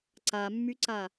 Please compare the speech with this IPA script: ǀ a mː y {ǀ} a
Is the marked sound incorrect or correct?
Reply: correct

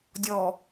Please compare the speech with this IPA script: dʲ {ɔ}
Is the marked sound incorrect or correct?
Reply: correct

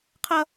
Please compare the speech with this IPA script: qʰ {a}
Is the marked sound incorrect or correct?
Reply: incorrect: ʌ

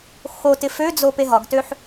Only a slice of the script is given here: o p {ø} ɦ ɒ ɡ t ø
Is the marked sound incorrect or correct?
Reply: incorrect: e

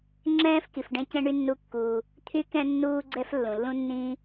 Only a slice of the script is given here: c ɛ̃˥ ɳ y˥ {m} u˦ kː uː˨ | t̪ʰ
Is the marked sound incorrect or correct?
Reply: incorrect: nː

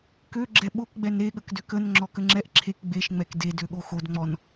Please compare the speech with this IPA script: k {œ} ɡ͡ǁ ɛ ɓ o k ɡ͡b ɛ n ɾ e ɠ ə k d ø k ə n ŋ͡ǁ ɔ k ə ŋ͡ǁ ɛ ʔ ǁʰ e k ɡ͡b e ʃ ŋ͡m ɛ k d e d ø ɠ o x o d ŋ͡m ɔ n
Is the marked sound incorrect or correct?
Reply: incorrect: ø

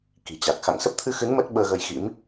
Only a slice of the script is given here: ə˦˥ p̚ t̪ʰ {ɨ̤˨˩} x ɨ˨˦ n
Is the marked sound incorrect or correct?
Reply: incorrect: ɨ˧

